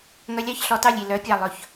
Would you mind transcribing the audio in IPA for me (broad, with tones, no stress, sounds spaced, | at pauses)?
ŋ œ˧˥ lʲ ɑ˥˨ ç ɬ ɔ˧˥ t ɑ˥˨ lʲ i˧˩ l œ˧˥ pʲ ɑ˧˩ lˠ ɵ˧˩˧ ç